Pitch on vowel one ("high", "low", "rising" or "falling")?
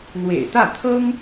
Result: low